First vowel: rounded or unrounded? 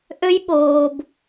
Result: rounded